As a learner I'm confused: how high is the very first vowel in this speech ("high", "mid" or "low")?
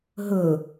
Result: mid